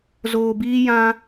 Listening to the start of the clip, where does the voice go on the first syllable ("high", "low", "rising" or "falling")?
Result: low